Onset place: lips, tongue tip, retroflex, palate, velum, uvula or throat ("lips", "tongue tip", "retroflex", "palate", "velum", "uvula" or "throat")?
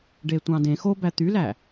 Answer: retroflex